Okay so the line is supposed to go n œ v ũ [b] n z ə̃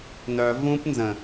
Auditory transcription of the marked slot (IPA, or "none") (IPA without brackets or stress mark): p